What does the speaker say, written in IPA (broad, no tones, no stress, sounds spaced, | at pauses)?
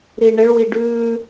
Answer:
ɾ i ɳ ɪ ɭ w i ɖ ʉ